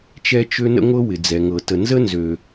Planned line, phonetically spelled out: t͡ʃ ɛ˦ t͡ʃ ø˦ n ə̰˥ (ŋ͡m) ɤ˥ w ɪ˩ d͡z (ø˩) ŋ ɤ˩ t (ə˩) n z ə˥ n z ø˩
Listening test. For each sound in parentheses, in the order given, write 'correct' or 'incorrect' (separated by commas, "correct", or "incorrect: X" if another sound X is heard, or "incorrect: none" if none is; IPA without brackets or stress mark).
incorrect: ŋʷ, incorrect: ɛ˩, correct